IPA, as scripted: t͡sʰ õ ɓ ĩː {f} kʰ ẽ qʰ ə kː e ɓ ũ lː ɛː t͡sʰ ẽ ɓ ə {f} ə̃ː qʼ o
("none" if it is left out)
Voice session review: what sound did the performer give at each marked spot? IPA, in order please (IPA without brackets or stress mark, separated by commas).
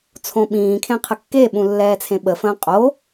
none, f